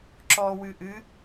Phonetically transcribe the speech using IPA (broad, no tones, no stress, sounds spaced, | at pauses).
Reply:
ǁ ɔ w ɨ ʔ ɨ